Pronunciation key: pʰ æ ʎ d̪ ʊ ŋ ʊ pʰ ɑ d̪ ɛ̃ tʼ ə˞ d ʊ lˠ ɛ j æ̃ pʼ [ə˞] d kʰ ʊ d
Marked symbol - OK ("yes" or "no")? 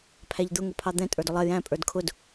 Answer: yes